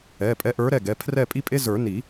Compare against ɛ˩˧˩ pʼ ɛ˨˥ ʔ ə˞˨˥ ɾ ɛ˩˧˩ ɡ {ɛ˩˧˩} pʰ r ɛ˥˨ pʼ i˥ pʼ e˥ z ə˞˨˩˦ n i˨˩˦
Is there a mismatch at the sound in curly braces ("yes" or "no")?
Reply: no